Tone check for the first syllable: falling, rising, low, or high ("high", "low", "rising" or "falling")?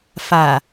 low